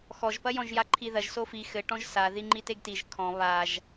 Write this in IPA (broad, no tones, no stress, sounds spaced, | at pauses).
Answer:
x ɔ ʒ p ɐ j ɔ̃ ʒ j a ǃʰ i ð ɐ ʒ s o f i x ɘ ʈ ɔ̃ ʒ s a ð i ŋ͡ǃ i t e ɡ t i ʒ kʰ ɔ̃ β a ʒ